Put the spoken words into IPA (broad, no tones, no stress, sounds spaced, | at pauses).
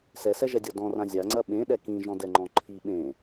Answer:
s ɛ s ɛ ʒ ɛ dʲ ɔ d ɔ̃ r ã zʲ a ŋ͡ǀ ɐ ɓ ẽ ɗ ɛ k ĩ ʒ ɔ̃ d ɛ ŋ͡ǃ ɔ̃ ǃʰ i ɓ ẽ